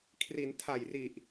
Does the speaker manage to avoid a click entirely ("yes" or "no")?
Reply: yes